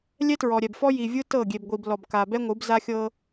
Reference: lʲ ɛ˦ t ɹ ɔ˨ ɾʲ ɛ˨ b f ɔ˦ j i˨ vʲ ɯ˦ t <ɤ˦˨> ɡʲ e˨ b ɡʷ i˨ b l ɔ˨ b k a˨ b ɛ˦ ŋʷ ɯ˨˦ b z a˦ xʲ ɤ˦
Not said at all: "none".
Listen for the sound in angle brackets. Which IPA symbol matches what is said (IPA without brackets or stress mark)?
ɤ˦˨